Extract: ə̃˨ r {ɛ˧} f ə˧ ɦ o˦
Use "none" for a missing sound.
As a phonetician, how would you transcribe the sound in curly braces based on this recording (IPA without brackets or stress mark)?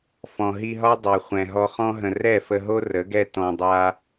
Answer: ɛ˦˨